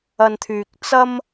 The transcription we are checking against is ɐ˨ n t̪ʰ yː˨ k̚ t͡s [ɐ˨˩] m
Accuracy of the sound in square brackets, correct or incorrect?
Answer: incorrect